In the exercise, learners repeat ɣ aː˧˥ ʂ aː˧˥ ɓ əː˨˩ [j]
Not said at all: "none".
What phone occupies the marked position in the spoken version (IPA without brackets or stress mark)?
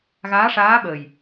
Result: j